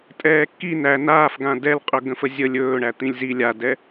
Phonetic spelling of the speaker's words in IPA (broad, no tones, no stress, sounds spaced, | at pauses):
tʼ ɛː kː i n æ n aː f ɡ ã d ɛ l qʼ ɵ ɡ ə̃ f ə zʲ ə lʲ ɵː ɳ æ t̪ ĩ lʲ z i lʲ a d ɛ